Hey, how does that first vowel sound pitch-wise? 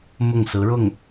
falling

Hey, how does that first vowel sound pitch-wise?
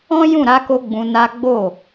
high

